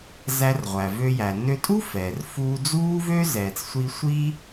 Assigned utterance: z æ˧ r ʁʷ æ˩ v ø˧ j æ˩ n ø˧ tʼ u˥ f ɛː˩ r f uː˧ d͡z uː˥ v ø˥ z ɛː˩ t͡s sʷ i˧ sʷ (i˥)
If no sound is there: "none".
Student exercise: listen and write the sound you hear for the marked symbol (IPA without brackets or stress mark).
i˥